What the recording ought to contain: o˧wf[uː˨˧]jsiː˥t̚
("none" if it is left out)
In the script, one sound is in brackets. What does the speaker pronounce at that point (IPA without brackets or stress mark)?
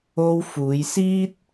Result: uː˨˧